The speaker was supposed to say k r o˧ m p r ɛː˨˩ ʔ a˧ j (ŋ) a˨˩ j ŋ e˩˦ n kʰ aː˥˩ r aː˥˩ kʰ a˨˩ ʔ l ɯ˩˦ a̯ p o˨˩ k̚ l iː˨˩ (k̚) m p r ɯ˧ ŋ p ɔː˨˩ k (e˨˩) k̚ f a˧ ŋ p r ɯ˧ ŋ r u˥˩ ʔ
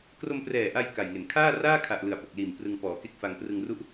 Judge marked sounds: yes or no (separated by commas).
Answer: no, no, no